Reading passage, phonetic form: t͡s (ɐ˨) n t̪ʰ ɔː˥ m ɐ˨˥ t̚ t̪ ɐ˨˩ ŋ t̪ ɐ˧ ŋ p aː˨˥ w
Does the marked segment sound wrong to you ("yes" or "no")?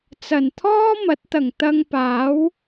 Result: yes